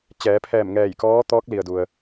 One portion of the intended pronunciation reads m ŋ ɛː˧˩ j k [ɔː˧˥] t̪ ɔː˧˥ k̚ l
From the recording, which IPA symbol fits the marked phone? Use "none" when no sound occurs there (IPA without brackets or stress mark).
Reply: ɔː˧˥